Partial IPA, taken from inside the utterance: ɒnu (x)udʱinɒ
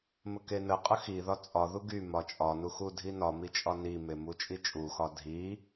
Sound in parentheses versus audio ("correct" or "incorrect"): correct